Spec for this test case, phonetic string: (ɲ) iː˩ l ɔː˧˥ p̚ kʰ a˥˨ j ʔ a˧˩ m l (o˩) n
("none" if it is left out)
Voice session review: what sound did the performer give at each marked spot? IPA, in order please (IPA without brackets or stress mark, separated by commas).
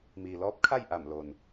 m, o˩